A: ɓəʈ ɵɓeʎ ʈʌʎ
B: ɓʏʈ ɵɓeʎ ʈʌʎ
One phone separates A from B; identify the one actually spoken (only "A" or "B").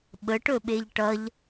A